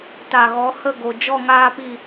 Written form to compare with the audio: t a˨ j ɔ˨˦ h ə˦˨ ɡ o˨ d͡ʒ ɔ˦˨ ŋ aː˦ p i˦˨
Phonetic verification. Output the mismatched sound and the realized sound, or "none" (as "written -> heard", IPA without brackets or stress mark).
j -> ɣ